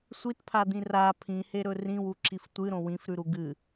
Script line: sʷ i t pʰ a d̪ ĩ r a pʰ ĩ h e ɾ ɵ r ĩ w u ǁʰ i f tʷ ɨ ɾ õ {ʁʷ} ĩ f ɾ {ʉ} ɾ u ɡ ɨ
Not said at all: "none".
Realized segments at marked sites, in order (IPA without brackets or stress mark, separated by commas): w, ʉ